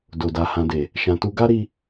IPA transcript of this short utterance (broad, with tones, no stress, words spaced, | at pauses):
do˨da˨hã˨de˨ | ʃã˨tu˧ ɡa˦ɾi˧